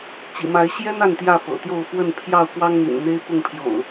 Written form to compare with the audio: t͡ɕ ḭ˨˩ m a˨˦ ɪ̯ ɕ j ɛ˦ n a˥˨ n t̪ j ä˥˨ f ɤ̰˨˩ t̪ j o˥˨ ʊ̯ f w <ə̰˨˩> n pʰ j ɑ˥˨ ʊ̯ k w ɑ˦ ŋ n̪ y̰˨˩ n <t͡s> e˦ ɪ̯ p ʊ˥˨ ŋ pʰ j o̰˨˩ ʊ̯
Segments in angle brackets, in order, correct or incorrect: incorrect: ə˥˨, incorrect: n̪

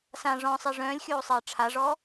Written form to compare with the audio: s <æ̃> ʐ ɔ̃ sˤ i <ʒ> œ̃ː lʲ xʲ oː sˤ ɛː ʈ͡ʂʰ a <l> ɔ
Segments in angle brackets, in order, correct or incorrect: incorrect: ã, incorrect: ʐ, incorrect: ʐ

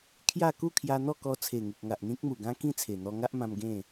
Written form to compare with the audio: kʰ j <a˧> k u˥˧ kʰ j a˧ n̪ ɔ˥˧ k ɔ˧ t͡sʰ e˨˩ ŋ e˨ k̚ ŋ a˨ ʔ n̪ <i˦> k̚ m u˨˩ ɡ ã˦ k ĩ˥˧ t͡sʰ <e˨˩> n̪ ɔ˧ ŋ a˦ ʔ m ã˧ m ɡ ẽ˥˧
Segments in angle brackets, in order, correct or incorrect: incorrect: a˥˧, incorrect: ĩ˦, correct

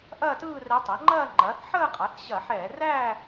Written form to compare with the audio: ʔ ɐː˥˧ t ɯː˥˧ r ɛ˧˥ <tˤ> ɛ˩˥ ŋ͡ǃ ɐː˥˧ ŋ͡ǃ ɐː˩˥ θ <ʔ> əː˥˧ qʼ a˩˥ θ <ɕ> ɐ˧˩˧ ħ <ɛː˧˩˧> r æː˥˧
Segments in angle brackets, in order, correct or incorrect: correct, incorrect: ħ, correct, correct

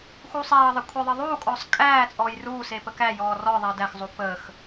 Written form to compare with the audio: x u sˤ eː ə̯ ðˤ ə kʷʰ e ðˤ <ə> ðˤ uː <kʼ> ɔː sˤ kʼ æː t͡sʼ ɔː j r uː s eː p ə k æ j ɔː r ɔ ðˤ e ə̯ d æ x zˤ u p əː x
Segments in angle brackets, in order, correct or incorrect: correct, correct

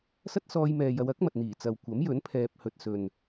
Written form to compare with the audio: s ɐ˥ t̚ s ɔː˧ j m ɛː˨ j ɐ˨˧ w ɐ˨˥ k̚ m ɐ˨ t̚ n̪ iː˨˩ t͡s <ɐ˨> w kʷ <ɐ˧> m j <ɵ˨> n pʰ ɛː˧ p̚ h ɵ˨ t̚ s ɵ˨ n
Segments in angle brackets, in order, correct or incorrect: correct, incorrect: ɐ˨˥, incorrect: ɵ˨˥

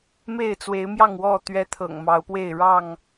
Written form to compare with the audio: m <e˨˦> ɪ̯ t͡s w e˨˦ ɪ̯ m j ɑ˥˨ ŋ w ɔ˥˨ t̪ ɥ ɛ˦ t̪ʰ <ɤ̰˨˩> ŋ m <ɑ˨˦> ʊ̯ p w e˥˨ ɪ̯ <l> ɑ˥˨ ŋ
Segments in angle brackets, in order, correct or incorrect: incorrect: e˥˨, correct, correct, incorrect: ɻ

